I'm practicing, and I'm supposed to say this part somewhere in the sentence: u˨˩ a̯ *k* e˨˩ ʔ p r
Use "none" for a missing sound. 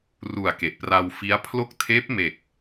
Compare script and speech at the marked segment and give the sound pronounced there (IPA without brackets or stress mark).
k